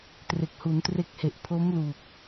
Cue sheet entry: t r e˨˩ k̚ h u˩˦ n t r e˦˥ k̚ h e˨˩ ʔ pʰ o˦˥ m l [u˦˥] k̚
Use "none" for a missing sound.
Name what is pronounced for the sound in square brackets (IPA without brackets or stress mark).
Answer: u˨˩